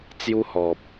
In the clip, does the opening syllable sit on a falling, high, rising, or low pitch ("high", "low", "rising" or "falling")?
high